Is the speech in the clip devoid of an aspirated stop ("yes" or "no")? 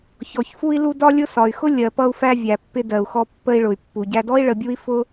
yes